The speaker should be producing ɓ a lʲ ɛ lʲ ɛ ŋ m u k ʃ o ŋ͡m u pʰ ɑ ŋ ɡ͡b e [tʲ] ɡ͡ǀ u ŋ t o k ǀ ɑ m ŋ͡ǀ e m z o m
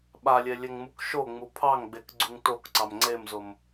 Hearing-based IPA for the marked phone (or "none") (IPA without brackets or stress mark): k